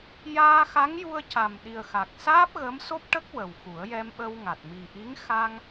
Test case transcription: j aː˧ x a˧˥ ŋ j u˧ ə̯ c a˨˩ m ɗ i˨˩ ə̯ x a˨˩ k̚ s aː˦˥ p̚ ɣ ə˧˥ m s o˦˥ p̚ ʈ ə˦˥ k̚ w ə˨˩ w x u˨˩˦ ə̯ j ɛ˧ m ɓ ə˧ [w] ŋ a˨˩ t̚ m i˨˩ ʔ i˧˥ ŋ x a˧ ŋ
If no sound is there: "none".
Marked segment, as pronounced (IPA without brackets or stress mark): w